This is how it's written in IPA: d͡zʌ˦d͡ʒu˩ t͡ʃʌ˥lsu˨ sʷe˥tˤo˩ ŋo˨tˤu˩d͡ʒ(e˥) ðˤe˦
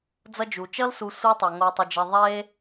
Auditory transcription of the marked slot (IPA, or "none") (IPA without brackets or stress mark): e˨